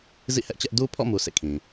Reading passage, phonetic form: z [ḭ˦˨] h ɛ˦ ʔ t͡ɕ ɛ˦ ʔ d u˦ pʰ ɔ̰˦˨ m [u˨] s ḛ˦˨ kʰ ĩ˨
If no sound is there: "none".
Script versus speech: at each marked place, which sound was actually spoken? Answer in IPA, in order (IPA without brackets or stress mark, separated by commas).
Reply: ḭ˦˨, u˨